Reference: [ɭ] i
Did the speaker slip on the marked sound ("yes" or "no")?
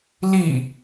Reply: yes